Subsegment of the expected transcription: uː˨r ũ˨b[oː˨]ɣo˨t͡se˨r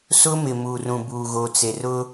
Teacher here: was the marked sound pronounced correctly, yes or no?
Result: no